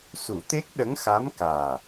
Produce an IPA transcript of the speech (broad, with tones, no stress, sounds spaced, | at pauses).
s u˨˩˦ t̪ e˦˥ k̚ ɗ ə˧˥ ŋ x a˧˥ m k aː˨˩